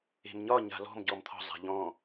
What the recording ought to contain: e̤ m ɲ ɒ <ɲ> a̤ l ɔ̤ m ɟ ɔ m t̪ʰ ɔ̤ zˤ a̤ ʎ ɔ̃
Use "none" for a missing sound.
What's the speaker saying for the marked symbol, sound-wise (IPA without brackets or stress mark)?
ɲ